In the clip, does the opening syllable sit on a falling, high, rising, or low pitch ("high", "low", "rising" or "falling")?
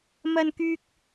low